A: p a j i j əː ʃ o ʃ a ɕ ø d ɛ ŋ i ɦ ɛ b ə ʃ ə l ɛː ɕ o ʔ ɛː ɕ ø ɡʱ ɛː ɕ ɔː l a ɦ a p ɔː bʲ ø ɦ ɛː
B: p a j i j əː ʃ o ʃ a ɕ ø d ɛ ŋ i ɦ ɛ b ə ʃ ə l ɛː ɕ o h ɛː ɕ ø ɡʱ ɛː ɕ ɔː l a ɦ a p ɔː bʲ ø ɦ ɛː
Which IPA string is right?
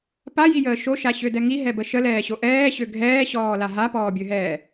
A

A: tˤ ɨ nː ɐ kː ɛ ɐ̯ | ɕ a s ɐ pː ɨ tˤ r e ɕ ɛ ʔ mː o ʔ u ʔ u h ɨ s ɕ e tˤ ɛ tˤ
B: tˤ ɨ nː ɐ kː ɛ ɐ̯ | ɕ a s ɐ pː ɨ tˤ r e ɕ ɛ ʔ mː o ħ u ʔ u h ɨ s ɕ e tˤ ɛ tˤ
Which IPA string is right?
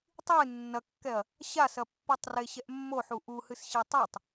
B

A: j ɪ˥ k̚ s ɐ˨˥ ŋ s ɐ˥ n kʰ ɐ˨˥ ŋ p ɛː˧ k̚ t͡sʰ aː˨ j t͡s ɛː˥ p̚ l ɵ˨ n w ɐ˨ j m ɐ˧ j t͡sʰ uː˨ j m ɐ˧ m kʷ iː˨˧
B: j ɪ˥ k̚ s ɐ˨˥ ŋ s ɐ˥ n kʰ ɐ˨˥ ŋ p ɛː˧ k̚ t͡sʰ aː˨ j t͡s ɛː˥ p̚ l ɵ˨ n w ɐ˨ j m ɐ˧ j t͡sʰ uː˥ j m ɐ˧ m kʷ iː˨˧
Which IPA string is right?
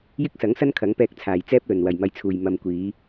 A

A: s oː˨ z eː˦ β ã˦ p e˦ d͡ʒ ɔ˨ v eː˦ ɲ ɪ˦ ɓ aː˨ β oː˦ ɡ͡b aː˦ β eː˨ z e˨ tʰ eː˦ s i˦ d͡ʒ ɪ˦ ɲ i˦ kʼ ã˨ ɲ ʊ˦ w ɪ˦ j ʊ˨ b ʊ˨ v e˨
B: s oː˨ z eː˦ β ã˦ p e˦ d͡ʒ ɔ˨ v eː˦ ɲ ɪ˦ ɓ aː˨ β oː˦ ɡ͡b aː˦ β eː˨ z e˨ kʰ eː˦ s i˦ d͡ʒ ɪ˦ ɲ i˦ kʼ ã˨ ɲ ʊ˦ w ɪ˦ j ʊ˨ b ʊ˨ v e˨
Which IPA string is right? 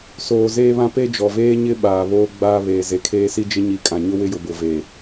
B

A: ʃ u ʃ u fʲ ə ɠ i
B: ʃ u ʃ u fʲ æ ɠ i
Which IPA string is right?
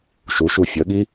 A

